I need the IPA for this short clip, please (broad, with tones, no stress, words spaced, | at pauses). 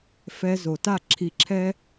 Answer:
fɛ˧ zo˨ta˦˨ǁʰi˧ǁʰɛ˦